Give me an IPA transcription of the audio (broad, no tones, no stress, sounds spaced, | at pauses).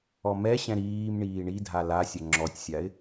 ɔ m ɛ ɕ ɛ̃ ɾ iː m ɳ iː ɳ i dʱ a l a sʲ ɐ ŋ͡ǁ ɔ tʲ sʲ a ɪ̯